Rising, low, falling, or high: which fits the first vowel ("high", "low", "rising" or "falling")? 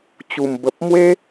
low